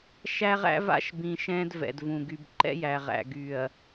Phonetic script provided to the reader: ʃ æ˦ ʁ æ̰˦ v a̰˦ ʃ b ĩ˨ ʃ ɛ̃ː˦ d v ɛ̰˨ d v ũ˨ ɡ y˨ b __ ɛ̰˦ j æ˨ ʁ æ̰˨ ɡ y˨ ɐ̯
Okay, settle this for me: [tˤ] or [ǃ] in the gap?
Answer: ǃ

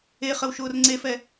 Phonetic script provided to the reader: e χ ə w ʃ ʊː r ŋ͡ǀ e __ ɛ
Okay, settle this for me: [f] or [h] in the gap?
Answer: f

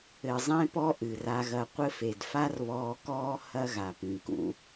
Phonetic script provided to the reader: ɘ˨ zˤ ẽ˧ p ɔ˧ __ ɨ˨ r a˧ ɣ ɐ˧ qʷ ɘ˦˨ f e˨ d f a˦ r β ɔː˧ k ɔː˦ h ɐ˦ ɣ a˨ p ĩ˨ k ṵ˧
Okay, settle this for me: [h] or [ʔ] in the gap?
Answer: ʔ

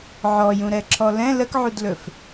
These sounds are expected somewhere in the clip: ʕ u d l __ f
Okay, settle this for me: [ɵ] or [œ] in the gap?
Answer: ɵ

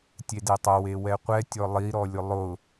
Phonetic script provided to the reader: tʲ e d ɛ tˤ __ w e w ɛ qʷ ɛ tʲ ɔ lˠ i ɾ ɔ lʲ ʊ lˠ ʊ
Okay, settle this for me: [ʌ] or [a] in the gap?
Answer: ʌ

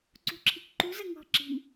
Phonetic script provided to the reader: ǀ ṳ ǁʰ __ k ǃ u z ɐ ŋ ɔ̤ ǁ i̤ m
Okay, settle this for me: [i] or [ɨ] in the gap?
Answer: i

